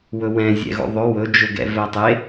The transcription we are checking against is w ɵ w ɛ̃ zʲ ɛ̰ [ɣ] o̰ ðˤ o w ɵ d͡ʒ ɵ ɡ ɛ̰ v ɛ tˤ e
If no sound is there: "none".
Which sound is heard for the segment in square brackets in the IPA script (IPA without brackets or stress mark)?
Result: ɣ